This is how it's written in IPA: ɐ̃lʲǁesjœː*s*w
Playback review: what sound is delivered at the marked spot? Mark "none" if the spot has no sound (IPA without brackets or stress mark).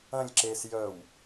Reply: none